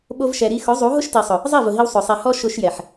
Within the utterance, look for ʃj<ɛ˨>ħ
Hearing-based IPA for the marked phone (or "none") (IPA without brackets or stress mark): ɛ˨